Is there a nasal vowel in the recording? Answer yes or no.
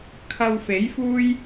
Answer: no